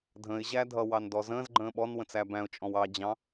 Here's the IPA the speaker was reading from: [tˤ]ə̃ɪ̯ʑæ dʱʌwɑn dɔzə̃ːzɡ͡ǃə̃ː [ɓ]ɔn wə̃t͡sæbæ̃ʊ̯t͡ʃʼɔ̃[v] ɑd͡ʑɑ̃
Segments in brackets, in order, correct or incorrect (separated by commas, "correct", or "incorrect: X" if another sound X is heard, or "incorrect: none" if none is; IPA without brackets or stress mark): incorrect: dʱ, correct, incorrect: w